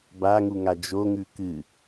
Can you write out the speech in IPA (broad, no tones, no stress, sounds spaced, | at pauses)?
b a ŋ u ŋ a d͡ʒ o ŋ ʉ k ɨ